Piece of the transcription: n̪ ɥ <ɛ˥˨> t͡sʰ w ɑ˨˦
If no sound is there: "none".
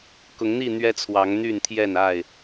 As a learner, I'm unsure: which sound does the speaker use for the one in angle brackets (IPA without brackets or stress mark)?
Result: ɛ˦